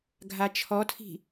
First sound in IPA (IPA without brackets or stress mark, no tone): ɡʱ